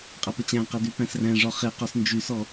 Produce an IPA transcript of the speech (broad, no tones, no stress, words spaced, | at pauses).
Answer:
qʼæpət͡ɕæ̃qæd ypæ̃sræ̃ʐɔ χeqɔs nd͡ʒysɔ